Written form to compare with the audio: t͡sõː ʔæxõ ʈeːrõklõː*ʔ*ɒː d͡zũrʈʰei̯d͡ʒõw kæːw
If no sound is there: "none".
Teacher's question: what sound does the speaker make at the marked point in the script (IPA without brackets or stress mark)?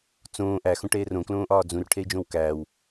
ʔ